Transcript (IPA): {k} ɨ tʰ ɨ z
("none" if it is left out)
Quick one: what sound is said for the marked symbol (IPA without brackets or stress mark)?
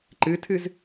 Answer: ǃ